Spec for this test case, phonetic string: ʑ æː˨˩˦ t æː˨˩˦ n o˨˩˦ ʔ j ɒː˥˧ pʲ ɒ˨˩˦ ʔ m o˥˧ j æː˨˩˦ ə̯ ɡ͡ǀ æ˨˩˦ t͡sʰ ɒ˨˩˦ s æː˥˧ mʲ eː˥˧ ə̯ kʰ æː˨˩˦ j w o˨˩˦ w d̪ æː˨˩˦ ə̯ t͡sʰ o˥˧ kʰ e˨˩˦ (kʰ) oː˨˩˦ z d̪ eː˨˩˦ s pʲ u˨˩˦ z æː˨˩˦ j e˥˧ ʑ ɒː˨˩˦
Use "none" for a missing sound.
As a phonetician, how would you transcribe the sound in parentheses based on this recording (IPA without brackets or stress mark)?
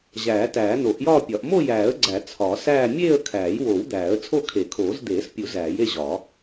kʰ